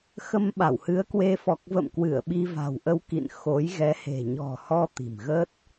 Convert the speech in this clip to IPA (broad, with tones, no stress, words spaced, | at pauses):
xə˧mɓa˧˩whɨ˨˦ə̯kwe˧ fɔ˨˩k̚və̰˧˨m kwɨ˧˩ə̯ɓi˧va̤˨˩wʔə˧w kḭ˧˨n xo˨˦j ɣɛ˨˦he̤˨˩ɲɔ̤˨˩hɔ˧ t̪i̤˨˩mɣə˦˥t̚